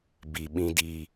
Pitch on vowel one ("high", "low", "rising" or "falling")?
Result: low